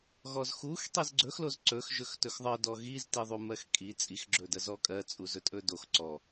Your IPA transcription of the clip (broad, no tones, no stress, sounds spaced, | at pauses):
ɣ ɔ z x u x tˤ i z ɡ͡ǀ ɵ x l o z ǀ ɵ x ʒ ɵ x t ɵ x ðˤ ɜ d ɔ ɣ i z t i ðˤ u m ɜ x kʼ i t͡sʼ i x ɡ͡ǁ ɵ d ɜ z ɔ kʼ ɜ t͡sʼ u z ɵ tʼ ɵ d o x ǀ ɔ